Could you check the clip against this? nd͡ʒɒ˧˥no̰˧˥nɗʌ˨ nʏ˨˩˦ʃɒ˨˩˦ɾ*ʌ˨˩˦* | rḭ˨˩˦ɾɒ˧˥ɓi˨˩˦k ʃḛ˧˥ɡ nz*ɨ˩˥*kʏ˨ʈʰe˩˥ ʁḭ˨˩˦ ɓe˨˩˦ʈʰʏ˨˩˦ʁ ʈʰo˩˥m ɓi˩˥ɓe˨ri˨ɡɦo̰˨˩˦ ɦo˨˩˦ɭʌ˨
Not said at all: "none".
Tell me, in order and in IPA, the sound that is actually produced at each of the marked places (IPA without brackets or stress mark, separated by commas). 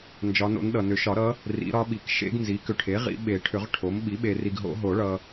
ʌ˧˥, i˩˥